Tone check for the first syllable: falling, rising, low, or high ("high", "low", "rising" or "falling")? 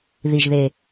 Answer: low